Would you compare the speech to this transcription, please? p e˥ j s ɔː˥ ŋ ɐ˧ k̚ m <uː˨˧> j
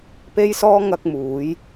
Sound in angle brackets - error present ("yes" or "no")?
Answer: no